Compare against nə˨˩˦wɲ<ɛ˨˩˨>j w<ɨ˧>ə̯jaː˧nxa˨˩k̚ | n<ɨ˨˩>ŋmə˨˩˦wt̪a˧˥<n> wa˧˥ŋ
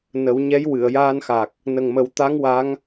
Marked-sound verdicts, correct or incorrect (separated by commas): incorrect, incorrect, incorrect, incorrect